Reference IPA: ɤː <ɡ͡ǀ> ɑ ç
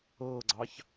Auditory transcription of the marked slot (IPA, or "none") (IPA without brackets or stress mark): ɡ͡ǀ